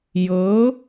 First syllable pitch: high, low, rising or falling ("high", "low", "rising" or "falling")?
rising